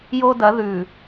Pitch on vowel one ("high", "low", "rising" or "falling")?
high